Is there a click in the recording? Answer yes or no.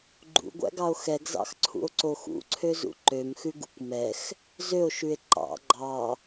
yes